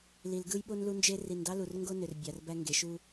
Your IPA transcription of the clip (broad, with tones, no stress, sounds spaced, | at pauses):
l i˨ l ɡ ɯ˦ j ɓ o˦ n l u˦ n d͡ʒ e˦ r i˨ n d ɑ˦ l u˨ r ŋ ɡ o˦ n ø˨ r bʲ ɑ˨ r b æ˦ ŋ ɡ e˨ ʃ u˦